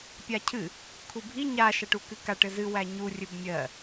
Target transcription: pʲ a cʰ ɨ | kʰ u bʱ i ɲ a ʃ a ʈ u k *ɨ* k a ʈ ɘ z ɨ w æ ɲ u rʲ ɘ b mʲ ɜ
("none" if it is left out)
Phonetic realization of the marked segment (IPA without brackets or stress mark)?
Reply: ɨ